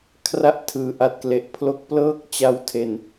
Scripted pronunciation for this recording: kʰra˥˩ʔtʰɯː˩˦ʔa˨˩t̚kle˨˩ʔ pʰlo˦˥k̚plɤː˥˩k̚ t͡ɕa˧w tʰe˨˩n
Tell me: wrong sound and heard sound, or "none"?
none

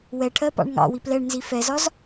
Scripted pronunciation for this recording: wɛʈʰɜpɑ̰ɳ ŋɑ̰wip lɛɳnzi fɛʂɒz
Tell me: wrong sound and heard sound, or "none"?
ʂ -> z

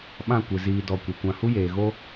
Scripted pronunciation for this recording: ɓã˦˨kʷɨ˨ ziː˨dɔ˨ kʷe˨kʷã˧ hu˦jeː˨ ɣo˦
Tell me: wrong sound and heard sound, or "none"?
none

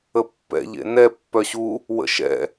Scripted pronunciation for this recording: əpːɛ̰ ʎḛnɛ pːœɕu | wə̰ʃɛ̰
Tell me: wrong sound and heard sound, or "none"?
none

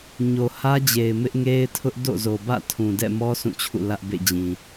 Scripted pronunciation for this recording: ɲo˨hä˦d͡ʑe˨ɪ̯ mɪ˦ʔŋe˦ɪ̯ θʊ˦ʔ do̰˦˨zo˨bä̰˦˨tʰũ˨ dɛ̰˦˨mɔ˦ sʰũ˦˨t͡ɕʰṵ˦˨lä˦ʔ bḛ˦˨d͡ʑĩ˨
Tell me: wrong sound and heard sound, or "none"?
θ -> tʰ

